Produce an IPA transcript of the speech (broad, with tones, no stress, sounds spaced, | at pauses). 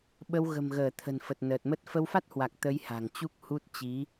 ɓ ə˧ w ɣ ə̤˨˩ m ɣ əː˧˩ t̪ʰ ə̤˨˩ n f ə˨˩ t̚ n əː˨˩ t̚ m ə˦˥ t̚ f ə˧ w f a˦˥ t̚ h w a˨˩ k̚ t̪ ə˨˦ j h a̤˨˩ ŋ t͡ɕ u˦˥ k̚ h u˦˥ t̚ t͡ɕ i˨˦